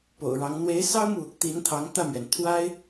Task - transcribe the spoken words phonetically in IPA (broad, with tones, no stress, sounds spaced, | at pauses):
p o̰˨˩ ʊ̯ ɻ ɑ˧˥ ŋ n̪ w e˧˥ ɪ̯ s ɑ˥ ʊ̯ m u˨ | t̪ i˧˥ n t̪ʰ ɑ˧˥ ŋ t̪ ä˥˩ m ɥ ɛ˩ n t̪ʰ w a˥ ɪ̯